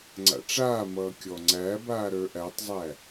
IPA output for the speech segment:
ŋ͡ǀ a̰ ʈ͡ʂ aː m ʌː kʲ ɔ ŋ͡ǀ æ b aː ɾ ə˞ ʔ æ tˤ zˤ æ

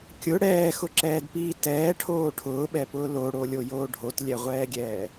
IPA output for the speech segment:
kʲ ʊ ɽ ɛː x ʊ ǁ ɛː d p iː t ɛː ʈʰ oː ʈʰ ʊː ɓ ɛ p ʊː l o ɽ o lʲ o j oː ɖʱ o t lʲ ɛ ʁʷ ɛː ɡʲ ɛː

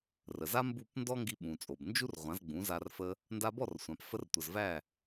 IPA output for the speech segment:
r ə˩ z a˥ m b u˥˩ p n d ɔ˥ ŋ ɡ i˧ ɓ ũ˩ t͡sʼ o˩ b n d͡ʒ u˥ r ʁʷ ã˩˥ z ɡ͡b ũ˩˥ z a˧ r f ə˧ | n d a˧ b ɔ˥˩ r sʷ ã˩ p f ə˧ r tʷ ə˩ z v æ˥˩

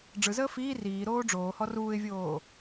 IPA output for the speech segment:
ɖ͡ʐ ɯ z əː f iː r iː ɾ oː ɖ͡ʐ oː h ɔ r uː ɪ̯ vʲ oː

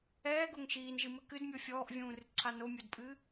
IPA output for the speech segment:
ɛː ɡ o ŋ ʃ iː n ʒ ɨ m ɘ k ɨ d mʲ o fʲ ɔː ʔ vʲ ũː r ɨ t ǀʰ a n o mʲ o d pʼ ɨː

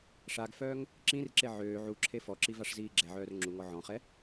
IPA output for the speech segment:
ʂ a ɡ f œː ŋ | ǁ ĩ r ǁ e ʕ øː ʕ u ǁʰ e f ɔ ǁ i v a ʂ z iː ɡ͡ǁ ɛ ʕ œː r ŋ͡ǁ u ŋ ɔ ʕ ɔ̃ χ ɛ

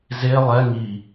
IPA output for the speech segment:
z e lˠ ɛ ŋ i

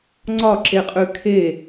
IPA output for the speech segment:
ŋ͡ǀ ɒ ǁ e qʼ ʉ kʰ e

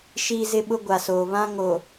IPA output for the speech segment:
ʃ iː˦ z ɪ˦ ɓ ʊ˦ ɡʷ a˨ s oː˨ β ã˦ ŋ o˨

